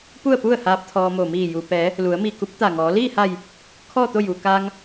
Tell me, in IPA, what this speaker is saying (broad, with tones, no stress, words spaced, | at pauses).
pu˥˨ə̯pu˥˨ə̯haː˧p̚ t̪ʰɔː˧mo˧˩ miː˧˩ju˩pɛː˩˧ | lu˩˧ə̯mi˧˩ ku˧˥p̚t̪a˧˩ŋɔː˩˧ liː˥˨ha˧˩j | kʰɔː˥˨t̪o˥˨ju˩ kaː˧ŋ